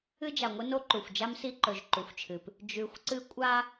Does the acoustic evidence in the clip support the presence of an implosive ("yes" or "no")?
no